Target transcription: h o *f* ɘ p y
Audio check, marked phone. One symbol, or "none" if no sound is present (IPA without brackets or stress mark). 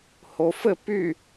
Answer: f